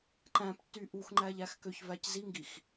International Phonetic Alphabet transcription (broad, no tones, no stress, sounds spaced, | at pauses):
ǃ æ̃ p tː y ʔ u x ŋ͡ǃ æ ʎ æ x k ø ç v æ c z i ŋ ɡ i x